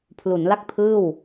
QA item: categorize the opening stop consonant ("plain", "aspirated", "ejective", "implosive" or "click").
aspirated